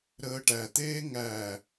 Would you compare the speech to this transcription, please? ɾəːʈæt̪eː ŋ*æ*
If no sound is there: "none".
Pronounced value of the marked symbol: æ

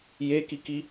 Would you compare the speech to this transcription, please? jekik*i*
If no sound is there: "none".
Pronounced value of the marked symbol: i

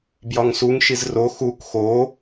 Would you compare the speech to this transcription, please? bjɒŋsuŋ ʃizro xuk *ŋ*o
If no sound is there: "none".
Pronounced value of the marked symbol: x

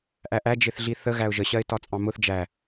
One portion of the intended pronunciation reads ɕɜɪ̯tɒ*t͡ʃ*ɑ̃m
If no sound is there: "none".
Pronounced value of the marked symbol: t͡sʼ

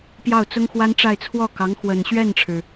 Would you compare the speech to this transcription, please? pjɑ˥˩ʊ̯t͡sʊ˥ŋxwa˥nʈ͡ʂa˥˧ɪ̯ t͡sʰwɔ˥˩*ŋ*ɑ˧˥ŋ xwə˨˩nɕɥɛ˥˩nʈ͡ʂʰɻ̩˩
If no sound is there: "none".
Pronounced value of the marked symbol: k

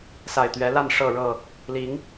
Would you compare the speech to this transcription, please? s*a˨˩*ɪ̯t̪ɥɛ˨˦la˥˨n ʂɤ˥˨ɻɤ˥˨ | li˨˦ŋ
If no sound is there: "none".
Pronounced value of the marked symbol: a˨˩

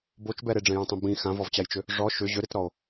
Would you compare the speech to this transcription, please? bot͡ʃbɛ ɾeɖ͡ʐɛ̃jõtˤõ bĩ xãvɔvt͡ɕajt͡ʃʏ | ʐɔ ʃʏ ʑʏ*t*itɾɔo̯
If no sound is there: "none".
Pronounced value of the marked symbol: ɾ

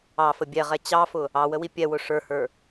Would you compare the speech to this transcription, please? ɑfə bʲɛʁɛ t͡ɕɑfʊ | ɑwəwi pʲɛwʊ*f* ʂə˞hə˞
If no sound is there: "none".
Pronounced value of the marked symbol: none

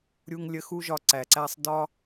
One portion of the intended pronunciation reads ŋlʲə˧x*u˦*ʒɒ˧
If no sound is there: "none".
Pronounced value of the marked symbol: u˦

